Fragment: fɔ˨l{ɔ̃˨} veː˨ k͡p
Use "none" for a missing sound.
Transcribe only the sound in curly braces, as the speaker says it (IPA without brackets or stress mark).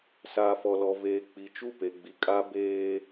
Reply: ɔ˨